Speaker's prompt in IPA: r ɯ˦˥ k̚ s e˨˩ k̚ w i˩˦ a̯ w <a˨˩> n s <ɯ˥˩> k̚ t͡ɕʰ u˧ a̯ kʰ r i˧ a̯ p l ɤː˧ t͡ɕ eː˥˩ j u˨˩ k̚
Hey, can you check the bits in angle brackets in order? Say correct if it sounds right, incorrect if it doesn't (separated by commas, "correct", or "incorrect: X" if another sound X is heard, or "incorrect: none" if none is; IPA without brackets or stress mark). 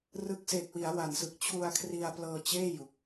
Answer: correct, incorrect: ɯ˨˩